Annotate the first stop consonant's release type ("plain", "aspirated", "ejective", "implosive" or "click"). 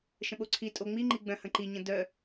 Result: implosive